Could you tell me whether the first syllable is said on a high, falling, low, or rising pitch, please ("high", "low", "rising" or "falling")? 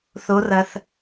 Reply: rising